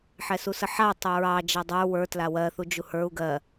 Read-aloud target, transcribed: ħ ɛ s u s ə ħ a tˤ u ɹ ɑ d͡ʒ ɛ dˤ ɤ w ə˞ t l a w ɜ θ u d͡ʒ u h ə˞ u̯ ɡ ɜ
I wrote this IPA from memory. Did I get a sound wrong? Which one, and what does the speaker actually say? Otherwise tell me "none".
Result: ɤ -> ə˞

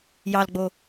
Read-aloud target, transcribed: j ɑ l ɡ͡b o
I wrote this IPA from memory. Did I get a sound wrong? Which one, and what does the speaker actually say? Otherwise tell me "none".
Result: none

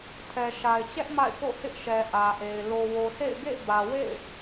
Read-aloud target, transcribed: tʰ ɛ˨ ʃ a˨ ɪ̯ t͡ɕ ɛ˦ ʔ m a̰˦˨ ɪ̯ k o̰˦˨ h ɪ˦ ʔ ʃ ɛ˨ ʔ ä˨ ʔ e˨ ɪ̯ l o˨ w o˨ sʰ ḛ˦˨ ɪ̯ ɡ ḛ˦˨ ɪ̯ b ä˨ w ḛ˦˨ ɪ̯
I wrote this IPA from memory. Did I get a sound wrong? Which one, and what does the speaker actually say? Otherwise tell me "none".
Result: none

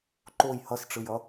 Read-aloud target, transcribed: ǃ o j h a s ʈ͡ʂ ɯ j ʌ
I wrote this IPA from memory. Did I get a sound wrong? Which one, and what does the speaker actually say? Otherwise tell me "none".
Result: a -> ʌ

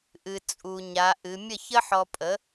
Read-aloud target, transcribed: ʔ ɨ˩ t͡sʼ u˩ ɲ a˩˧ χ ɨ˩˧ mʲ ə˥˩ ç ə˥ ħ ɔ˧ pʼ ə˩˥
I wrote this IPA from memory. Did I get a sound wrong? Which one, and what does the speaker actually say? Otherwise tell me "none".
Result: χ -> ʔ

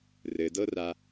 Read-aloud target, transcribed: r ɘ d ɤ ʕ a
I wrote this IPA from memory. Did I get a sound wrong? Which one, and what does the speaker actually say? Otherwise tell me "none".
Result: ʕ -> r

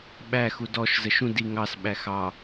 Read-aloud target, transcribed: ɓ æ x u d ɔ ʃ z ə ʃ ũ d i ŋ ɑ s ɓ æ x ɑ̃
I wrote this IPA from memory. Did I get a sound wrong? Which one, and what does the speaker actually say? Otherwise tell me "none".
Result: ɑ̃ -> ɑ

